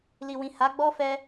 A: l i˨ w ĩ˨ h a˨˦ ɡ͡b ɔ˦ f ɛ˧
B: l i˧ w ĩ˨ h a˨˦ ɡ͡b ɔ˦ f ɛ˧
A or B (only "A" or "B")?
A